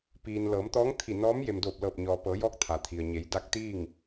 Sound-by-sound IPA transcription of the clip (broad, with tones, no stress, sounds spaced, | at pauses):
p iː˩ n l ɤː˩˧ m t̪ ɔː˧˥ ŋ t̪ʰ i˧˩ n ɔː˧˥ m j e˩ m d oː˧˩ p̚ l ɤː˧˩ p̚ ɲ ɔː˩ p ɤː˩˧ j ɔː˧˥ k̚ t̪ʰ a˩ t̪ʰ i˩ ə̯ ɲ e˩˧ j d a˧˥ k̚ t̪ iː˥˨ ŋ